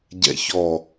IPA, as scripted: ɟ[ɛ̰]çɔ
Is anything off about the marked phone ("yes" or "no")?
no